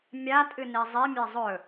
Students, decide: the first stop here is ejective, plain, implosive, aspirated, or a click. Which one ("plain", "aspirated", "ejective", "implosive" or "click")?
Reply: ejective